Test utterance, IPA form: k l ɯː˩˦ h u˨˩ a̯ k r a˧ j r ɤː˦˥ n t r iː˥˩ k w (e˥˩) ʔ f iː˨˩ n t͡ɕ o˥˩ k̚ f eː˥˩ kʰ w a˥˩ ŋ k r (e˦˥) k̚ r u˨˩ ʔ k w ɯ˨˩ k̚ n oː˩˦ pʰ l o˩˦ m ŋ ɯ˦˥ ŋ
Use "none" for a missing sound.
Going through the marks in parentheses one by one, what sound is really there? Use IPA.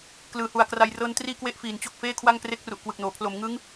e˥˩, e˦˥

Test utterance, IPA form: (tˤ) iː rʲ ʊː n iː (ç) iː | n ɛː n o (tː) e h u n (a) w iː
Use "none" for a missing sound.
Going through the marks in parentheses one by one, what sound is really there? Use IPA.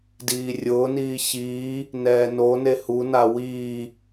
d, ç, n, a

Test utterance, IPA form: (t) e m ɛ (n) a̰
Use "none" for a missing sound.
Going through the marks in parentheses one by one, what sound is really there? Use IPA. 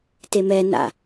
t, n

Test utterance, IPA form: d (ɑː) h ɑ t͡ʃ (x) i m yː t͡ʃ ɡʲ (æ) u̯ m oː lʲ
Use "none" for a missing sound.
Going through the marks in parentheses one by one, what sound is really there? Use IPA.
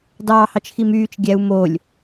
ɑː, x, æ

